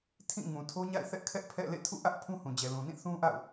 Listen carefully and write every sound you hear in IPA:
tʰ ĩ˦˨ ŋ ũ˨ tʰ o˦ ɲ a̰˦˨ ɪ̯ θ ɛ˦ ʔ kʰ ɛ˦ ʔ pʰ ɛ̰˦˨ l ḛ˦˨ tʰ ṵ˦˨ ʔ ä˦ ʔ pʰ ũ˦ h ũ˨ d͡ʑ ɛ˨ l ũ˨ n ĩ˦˨ θ ũ˦ ʔ a̰˦˨ ʊ̯

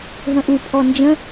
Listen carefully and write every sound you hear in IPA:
ɦ ə̃ ʔ u pʰ ɔ n d͡ʒ ə̃

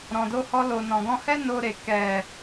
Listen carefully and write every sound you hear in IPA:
ɾ ɔ̃˨ d o˧ h ɔ˧ l o˨ n ɔ̃˨ ɡ ɔ̃˧ h ɛ˦ n o˧ ɾ e˨ k ɛ˨

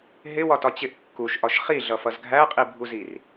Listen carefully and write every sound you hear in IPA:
ɦ ɪ w ɒ t ɒ t͡ɕ ɪ ʔ kː u ʃ ʔ ɒ ʃ χ i ɮ ʌ f ʌ z ɡʱ æ qʼ i bʱ u z i r

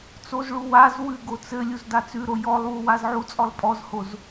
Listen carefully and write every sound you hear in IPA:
t͡s o z ɭ u w a z w ʉ ɡ o t͡s ɘ lʲ u z d a t͡s ʉ ɾ o j ɔ lˠ w u w a z ʕ u t͡sʼ ɔ lˠ pʼ ɔ z h o z

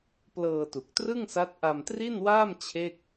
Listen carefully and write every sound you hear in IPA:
p l ɤː˧ t u˨˩ k̚ t r ɯ˥˩ ŋ s a˦˥ t̚ ʔ a˧ m t r i˥˩ n w aː˥˩ m t͡ɕʰ e˥˩ k̚

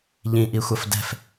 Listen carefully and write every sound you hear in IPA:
ʎ ĩ ʔ i xʷ ɐ f d ɛ̤ f

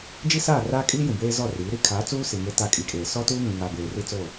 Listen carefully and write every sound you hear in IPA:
d͡ʒ i˦ s aː˦˨ r aː˦ kʼ iː˦ j ũ˨ b eː˦ z ɔ˦˨ r iː˨˦ ɾ i˦ kʰ aː˨˦ t͡s uː˦ s i˨ ŋ e˦ t a˦˨ kʼ i˨ kʼ eː˨ s ɔ˦ t uː˦ ŋ ũ˨ ŋ a˨ b eː˨ r i˦ t͡s o˦˨

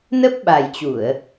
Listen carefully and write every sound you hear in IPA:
n ə˦˥ p̚ ɓ a˨˩ j t͡ɕ u˧˩˨ ə̯

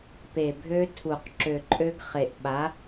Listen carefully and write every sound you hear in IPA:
p e˨˩ bʱ ø˦˥ tʰ u˨˩ q ǁ ø˨˩ ǃʼ ø˦˥ ɡ χ e˨˩ ʔ ɓ a˨˥

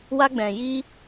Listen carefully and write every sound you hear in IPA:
w a˧ ɡ͡b ɛ̃˨ j i˧

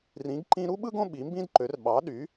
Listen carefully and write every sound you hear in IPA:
r ĩ˨˥ ɡ ǃ ĩ˥ ɾ u˥ ɓ ɯ˥ ɡ õ˥ ɓ i˨˥ m b ĩ˥ d ǃ ø˨˥ r ɓ ɑ˨˥ ɗ y˨˥

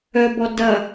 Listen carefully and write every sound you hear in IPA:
œ b ɔ d ɐ

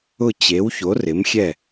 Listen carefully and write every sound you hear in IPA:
ʊ˥˨ t͡ɕ e˨˥ w ç o˨˥ r ɪ˨˥ m xʲ ɛ˥˨

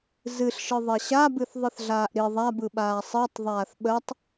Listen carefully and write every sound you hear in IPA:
z ɨ ɬ ʃ ɯ ðˤ ɛ ɕ a b ɨ θ ðˤ ɯ θ ɮ aː ʔ ɾ i ðˤ a b ɯ ɓ aː sˤ ɨ tˤ ðˤ aː θ ɓ ə tˤ

